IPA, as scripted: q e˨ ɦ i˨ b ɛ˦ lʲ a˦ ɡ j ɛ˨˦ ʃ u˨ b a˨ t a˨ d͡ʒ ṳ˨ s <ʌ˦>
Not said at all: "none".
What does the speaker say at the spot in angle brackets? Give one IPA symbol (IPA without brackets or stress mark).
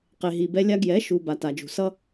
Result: ʌ˦